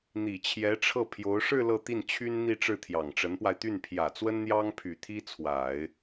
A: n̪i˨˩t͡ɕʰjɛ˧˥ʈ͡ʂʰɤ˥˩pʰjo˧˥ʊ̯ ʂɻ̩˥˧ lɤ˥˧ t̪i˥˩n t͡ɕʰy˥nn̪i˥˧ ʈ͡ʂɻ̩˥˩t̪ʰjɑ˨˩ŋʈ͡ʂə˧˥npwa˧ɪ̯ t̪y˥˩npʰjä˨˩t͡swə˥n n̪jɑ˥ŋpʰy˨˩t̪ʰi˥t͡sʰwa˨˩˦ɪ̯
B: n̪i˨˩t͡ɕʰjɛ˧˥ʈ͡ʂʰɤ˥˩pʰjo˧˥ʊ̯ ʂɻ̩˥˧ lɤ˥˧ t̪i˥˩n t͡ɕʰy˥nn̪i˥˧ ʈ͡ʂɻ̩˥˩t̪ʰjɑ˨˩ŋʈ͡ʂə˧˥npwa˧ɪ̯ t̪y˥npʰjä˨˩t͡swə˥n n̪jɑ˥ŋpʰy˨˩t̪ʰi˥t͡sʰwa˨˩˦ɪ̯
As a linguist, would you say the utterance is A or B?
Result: A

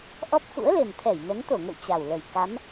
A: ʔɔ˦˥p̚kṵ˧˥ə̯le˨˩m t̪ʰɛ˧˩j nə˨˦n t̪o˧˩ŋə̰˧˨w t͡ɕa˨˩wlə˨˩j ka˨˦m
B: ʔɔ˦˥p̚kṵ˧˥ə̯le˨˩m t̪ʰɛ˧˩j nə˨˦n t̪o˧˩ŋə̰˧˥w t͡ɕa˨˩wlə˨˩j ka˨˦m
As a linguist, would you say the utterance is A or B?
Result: A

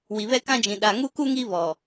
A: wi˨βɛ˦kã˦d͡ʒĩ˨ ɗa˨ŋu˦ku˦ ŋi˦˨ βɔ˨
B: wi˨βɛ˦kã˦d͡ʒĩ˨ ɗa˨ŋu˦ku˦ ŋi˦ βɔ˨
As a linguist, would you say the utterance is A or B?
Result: B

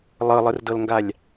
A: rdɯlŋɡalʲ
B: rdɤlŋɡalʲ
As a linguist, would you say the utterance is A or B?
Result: B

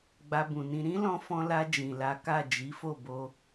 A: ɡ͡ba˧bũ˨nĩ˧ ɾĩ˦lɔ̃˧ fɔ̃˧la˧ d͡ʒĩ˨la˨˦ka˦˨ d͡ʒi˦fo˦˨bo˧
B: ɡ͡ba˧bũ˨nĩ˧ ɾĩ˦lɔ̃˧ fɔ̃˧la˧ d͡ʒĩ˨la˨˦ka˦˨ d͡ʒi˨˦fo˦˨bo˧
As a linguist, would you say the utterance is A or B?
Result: B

